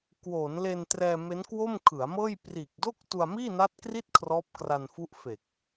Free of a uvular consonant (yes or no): yes